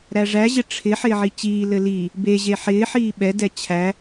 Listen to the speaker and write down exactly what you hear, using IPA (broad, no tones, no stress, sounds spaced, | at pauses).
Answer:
ɾ æ ʐ æ ʑ ɪ ʈ͡ʂʰ ɪ ħ ɪː ʕ i t͡ɕ iː l ɘ l i | b e ʑ e ħ ɪː ħ iː ɓ ɛ d ɛ t͡ɕʰ æ